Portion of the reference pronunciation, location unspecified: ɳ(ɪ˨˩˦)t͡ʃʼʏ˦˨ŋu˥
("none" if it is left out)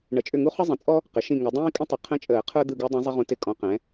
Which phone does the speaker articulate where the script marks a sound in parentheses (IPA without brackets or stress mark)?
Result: ə˨˩˦